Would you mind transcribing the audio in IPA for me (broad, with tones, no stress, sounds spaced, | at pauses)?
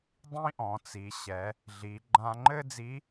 dˤ ĩ˥ ʔ ɔ̃˩˧ t͡s i˩˧ ɕ ɛ˩˧ | ɮ i˩˧ ɡ͡ǃ ã˧ ŋ͡ǃ ɘ˥ d͡z i˧˥